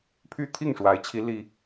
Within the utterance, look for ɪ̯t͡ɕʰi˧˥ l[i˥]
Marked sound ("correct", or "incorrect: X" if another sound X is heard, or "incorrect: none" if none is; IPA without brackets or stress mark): correct